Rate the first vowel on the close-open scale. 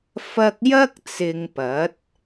open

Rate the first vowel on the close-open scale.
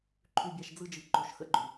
close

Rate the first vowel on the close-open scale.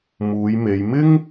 close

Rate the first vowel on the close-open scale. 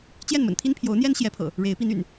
mid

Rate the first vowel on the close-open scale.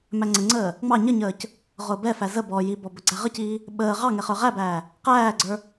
open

